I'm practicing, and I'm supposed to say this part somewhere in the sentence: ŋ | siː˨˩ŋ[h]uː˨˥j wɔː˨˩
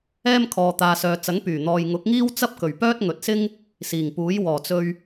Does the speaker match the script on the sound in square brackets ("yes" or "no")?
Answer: no